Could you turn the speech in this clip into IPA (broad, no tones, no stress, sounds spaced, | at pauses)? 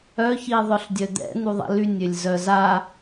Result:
œ ç i ðˤ œ ɬ dʲ œ d̪ ɛ̰ n̪ u ðˤ ɛ̰ l y nʲ ø lʲ z œ z a